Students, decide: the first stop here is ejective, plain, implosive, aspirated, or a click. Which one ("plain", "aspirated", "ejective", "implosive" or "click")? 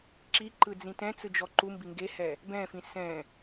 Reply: click